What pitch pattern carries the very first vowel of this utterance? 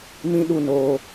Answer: high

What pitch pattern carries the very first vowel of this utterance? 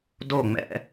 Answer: falling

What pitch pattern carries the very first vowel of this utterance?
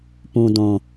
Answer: low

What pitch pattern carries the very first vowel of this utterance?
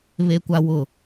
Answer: high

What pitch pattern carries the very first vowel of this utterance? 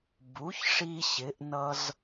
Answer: rising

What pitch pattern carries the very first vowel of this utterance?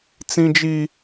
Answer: high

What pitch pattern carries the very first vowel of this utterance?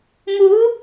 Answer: rising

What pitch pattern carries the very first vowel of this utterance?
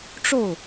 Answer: falling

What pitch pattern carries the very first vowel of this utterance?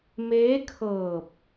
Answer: rising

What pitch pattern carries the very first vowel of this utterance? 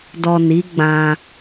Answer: low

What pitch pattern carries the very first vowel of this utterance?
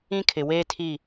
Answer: high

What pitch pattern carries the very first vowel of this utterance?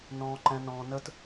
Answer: low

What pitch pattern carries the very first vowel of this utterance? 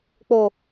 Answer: low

